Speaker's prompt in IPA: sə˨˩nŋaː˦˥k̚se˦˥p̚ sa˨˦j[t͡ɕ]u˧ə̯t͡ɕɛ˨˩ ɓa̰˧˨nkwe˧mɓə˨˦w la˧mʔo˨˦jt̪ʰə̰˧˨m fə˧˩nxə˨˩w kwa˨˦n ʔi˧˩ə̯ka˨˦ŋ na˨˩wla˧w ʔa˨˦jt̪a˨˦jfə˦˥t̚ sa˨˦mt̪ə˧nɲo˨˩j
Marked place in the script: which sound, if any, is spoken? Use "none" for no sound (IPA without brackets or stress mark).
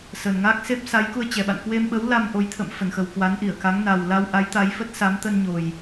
k